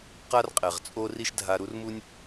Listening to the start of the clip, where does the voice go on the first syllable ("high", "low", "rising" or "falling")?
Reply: high